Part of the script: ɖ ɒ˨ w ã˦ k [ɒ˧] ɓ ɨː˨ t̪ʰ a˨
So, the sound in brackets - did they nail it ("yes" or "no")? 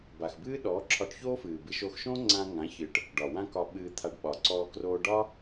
yes